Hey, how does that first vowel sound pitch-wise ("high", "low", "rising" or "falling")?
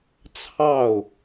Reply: falling